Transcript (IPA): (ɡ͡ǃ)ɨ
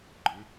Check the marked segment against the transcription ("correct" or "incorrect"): correct